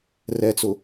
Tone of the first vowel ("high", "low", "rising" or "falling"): low